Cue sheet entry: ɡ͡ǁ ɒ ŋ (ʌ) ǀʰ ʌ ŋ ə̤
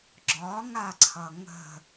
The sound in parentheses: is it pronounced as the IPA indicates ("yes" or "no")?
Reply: no